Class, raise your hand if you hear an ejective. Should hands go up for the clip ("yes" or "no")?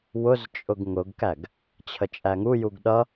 yes